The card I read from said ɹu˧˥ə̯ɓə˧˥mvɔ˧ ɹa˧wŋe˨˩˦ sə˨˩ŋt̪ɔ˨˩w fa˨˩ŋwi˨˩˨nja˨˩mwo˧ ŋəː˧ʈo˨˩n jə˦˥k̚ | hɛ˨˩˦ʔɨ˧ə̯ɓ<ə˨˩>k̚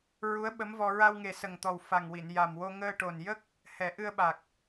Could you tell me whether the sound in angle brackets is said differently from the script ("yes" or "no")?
yes